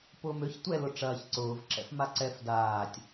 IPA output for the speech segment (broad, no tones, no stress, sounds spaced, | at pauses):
p ʊː m ø ç tʷ ɛ l ʊ ʈ͡ʂ ɐː ç ǀ ʊː v ǁ ɛ̰ f m a ǀ ɛ f d aː tʲ